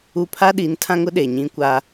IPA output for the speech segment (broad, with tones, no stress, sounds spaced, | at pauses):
u˦ pʰ a˦ ɗ i˨˦ n tʰ ã˦ ŋ ʊ˦ ɗ e˨ ɲ ĩ˦ kʷ a˦